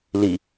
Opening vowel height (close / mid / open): close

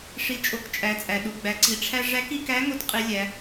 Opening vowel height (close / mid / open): close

